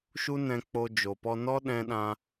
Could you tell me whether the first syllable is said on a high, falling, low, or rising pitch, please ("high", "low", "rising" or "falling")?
high